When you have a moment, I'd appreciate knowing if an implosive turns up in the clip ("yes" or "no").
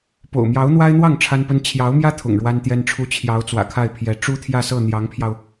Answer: no